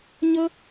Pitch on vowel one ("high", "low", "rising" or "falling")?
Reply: high